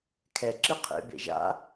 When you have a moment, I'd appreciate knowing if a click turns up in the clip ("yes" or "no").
yes